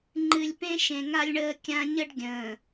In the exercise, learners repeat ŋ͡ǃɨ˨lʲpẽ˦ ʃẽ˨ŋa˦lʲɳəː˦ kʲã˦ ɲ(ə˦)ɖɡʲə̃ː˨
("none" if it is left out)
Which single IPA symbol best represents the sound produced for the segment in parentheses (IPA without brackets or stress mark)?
ə˦